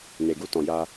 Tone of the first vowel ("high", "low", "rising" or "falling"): low